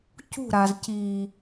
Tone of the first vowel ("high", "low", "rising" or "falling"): falling